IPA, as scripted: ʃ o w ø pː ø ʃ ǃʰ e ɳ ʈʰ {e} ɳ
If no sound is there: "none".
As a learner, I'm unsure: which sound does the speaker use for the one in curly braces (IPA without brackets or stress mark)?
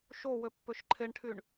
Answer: y